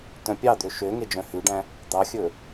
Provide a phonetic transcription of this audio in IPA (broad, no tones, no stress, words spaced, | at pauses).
tœ̃pʲɑd̪ø ʃø ŋed͡ʒœ̃hʉɖæ̃ | d̪ɑxʲɵ